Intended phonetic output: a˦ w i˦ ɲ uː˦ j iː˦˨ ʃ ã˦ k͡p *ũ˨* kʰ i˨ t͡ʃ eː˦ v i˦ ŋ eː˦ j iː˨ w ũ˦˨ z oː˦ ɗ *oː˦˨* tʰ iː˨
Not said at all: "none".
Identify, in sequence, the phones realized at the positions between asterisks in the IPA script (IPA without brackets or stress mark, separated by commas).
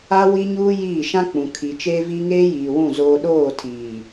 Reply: ũ˨, oː˦˨